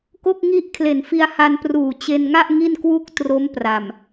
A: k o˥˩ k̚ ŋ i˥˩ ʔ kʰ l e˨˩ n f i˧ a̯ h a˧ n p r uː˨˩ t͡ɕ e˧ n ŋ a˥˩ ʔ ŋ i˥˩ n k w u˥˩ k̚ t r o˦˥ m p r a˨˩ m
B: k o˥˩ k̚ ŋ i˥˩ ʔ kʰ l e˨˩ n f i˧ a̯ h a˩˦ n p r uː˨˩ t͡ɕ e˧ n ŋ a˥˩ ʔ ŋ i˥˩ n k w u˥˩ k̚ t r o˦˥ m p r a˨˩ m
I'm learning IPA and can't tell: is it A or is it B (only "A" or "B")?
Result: A